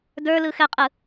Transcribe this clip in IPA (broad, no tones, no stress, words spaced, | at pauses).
də˞lɯxɛqʼɯ